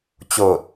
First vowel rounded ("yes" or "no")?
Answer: yes